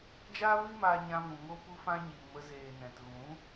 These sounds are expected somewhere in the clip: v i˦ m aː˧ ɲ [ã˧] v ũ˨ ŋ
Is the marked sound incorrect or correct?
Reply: correct